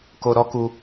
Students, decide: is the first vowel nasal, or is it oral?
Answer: oral